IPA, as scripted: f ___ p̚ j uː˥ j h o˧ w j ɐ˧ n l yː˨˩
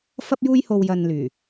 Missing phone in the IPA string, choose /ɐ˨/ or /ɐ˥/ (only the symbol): ɐ˥